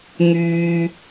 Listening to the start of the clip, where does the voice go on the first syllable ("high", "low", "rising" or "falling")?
low